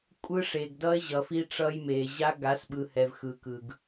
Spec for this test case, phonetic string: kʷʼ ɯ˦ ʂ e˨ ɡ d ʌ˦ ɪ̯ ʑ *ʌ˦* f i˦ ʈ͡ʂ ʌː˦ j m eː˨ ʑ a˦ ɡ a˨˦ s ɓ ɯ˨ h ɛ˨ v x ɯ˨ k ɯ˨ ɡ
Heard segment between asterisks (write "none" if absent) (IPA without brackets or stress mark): ʌ˨